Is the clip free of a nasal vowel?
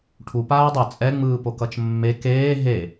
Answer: yes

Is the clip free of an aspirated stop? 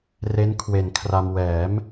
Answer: no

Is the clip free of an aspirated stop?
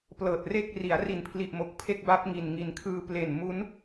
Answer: no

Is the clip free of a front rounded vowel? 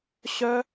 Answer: no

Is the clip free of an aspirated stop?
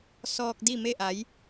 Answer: yes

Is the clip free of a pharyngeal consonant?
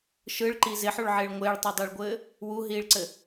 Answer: no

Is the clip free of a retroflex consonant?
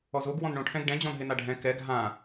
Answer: no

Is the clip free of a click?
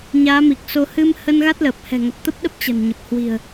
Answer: yes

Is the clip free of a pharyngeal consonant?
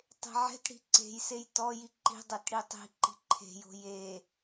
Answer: no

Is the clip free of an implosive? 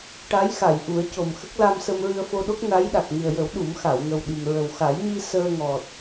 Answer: no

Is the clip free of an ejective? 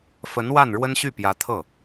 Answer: yes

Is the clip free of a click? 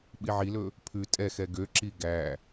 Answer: no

